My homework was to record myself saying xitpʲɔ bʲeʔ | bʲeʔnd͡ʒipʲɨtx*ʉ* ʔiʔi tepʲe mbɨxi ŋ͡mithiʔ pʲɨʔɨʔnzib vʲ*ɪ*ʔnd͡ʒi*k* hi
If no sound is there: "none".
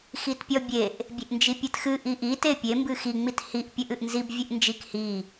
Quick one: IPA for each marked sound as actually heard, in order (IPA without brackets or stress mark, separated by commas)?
ɨ, ɨ, k